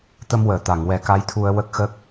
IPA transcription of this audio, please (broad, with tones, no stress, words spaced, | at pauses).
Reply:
t̪ə˧mwəː˨˩˨t̪a˨˩˨ŋ wɛ˨˩˦ka˧˥jt̪ʰu˧ə̯ wə˦˥k̚xə˦˥k̚